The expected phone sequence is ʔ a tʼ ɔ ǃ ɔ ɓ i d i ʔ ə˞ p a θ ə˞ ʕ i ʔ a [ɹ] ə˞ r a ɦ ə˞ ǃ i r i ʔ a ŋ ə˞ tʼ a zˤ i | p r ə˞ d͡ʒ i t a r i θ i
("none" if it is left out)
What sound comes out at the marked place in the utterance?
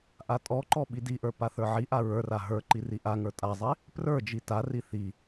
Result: ɹ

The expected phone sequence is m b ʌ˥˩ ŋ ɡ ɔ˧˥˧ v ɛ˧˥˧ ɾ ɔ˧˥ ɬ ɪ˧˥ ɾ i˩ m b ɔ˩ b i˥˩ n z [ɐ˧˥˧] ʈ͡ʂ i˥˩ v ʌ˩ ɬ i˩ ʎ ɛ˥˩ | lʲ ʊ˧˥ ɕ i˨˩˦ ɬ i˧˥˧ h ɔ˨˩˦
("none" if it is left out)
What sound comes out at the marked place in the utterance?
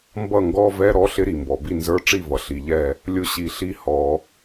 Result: ə˞˧˥˧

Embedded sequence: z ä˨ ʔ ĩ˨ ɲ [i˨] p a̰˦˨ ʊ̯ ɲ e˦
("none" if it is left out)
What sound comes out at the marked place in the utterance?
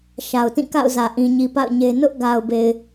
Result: i˨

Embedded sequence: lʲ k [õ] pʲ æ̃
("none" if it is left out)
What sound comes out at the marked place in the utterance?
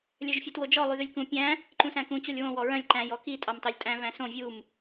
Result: ũ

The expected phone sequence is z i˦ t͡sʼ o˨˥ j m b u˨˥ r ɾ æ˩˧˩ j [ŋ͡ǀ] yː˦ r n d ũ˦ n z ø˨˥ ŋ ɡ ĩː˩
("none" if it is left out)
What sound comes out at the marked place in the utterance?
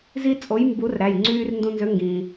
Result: ŋ͡ǀ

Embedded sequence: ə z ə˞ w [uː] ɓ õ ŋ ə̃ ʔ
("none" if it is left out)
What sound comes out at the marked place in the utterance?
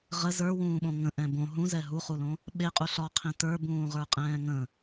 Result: ũː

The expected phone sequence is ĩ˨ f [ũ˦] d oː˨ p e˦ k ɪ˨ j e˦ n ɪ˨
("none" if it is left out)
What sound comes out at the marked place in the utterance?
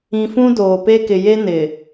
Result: ũ˦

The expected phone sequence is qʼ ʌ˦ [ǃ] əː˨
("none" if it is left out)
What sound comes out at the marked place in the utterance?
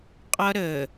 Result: ɾ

